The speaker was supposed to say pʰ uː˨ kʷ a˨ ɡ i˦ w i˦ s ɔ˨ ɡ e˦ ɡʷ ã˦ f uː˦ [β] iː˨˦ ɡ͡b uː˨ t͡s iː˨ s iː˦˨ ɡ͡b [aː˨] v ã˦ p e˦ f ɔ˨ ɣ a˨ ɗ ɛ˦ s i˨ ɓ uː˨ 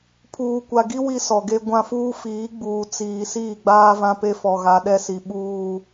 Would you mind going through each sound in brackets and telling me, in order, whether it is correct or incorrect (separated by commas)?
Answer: incorrect, incorrect